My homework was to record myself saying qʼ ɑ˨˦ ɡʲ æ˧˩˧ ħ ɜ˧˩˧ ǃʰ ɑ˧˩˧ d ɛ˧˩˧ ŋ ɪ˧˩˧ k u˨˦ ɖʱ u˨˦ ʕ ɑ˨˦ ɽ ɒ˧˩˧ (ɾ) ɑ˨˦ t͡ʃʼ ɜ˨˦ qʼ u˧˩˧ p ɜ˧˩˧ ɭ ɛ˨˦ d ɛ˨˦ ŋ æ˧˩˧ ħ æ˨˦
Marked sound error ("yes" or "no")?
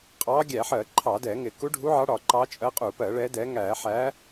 yes